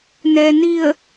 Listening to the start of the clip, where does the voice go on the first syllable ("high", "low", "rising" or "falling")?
low